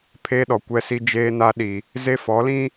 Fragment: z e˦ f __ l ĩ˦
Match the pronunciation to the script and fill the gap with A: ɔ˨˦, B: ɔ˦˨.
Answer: A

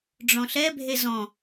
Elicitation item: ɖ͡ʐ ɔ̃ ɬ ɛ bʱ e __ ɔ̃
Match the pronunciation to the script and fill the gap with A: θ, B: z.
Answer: B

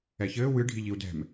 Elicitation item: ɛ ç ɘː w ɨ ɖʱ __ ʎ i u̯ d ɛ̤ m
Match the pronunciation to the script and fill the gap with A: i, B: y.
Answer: A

